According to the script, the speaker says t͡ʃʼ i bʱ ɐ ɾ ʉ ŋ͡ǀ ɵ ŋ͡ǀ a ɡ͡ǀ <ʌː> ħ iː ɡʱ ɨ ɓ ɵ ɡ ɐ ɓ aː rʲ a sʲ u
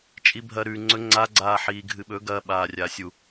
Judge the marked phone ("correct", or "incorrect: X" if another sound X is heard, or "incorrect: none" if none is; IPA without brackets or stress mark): incorrect: aː